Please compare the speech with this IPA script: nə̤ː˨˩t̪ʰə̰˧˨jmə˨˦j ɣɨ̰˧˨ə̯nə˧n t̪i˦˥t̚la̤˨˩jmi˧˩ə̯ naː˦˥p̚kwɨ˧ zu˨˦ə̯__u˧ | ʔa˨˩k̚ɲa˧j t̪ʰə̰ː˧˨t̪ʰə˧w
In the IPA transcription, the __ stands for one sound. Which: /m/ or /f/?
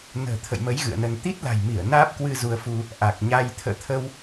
f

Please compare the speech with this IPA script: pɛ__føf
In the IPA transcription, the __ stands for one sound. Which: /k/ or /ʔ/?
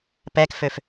k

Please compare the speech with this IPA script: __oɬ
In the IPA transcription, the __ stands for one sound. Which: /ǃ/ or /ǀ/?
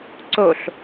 ǀ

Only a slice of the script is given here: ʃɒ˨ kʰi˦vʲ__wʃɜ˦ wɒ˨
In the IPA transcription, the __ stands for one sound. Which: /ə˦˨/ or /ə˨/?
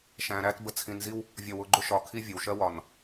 ə˨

